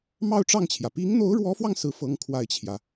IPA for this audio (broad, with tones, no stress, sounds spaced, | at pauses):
m ɑ˥˧ ʊ̯ ʈ͡ʂ ɑ˥˩ ŋ t͡ɕʰ j ä˩ p i˧˥ ŋ n̪ o˧˥ ʊ̯ ɻ w ɔ˧˥ f w ɑ˧ ŋ s ɹ̩˥˩ f ɤ˥ ŋ kʰ w a˥˩ ɪ̯ t͡ɕʰ j ä˩